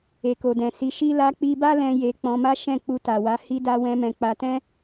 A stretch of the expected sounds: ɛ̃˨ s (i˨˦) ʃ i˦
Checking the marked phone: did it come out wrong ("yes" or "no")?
no